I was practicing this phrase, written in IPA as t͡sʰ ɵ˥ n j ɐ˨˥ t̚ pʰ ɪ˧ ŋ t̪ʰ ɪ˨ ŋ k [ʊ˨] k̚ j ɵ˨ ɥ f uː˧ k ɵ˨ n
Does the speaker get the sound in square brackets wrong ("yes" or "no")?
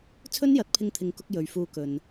yes